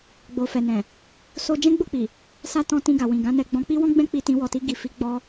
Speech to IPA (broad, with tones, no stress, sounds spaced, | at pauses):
ɡ͡b o˨ f ɛ˨ n ɛ̃˨ | s o˧ d͡ʒ ɛ̃˦ ɡ͡b o˦˨ k͡p i˨ | s a˧ t ɔ̃˧ t ĩ˧ ɡ a˨ w ĩ˨ ɡ ã˨˦ n ɛ˧ ɡ͡b ɔ̃˧ k͡p i˦ w ɔ̃˦ ɡ͡b ɛ̃˦ k͡p i˧ t ĩ˧ w ɔ˨ t i˧ ɡ i˨ f i˨˦ ɡ͡b ɔ˧